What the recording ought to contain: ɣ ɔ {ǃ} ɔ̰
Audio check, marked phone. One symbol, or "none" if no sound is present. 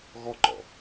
ǃ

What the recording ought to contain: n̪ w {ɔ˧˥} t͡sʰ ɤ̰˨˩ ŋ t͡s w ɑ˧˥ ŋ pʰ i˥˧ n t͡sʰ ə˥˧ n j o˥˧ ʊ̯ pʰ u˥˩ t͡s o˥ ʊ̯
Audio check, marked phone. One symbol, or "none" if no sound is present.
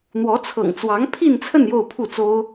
ɔ˧˥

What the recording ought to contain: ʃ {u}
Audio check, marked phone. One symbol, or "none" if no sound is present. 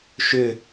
ʏ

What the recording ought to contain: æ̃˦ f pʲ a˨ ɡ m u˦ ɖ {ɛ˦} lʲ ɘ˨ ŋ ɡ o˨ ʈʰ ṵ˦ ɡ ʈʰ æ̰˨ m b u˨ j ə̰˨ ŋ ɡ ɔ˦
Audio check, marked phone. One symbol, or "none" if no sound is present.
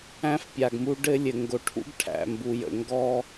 ɘ˦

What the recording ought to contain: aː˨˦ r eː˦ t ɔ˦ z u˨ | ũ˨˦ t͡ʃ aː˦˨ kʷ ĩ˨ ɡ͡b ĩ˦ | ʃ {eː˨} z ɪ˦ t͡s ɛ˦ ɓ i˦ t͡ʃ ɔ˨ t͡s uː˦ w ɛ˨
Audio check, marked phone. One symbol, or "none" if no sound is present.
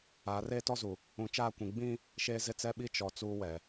eː˦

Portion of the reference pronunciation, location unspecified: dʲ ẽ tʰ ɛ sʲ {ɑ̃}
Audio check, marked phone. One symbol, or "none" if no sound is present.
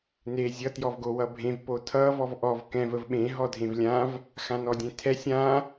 ã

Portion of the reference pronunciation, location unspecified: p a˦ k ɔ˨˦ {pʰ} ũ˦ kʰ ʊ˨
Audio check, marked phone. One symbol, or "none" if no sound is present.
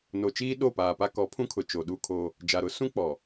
pʰ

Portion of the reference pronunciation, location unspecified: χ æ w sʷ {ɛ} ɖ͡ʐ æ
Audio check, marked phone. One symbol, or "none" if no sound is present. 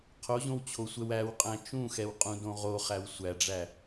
æ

